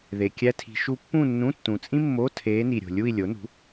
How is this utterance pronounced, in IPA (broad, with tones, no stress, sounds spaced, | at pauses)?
ð e˨ kʲ æ˥ tʰ i̤˧˥ ʃ u˧˥ pː ũ˥˧ nː ũ˧˥˧ tː ũ˨ t͡sʼ ĩ˥ mː o˧˥˧ tʰ eː˧˥ n i˨ ɾʲ o̤˨ lʲ u˥˧ i̯ lʲ o˩˥ n ṳ˩˥